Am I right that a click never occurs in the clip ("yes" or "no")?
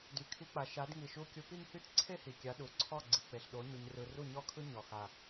no